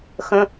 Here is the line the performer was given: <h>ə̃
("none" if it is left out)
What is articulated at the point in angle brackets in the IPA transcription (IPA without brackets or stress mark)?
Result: x